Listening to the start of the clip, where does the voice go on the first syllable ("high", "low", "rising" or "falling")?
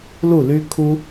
falling